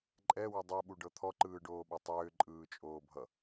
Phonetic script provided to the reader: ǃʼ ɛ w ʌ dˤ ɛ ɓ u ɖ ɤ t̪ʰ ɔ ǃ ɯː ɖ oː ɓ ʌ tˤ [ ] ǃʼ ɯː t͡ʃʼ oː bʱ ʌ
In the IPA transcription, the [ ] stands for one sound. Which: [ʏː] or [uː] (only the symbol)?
ʏː